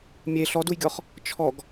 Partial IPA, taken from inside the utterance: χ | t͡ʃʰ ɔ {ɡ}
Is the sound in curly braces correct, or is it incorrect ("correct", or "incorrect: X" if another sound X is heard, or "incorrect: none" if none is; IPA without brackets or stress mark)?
correct